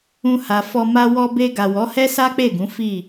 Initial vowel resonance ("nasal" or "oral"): nasal